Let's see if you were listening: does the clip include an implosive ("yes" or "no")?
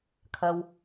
no